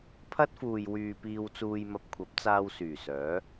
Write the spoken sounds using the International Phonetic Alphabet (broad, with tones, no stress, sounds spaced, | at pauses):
pʰ ɐ˥ t̚ f uː˨ j w yː˨ p iː˧ w t͡s uː˧ j m ɐ˧ p̚ kʷʰ ɐ˨˥ p̚ t͡s aː˧ w s yː˨˩ s œː˨˥